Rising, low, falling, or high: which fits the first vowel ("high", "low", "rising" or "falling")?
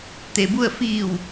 low